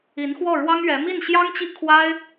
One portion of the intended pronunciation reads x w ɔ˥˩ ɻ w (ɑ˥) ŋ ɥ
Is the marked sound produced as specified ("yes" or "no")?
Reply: yes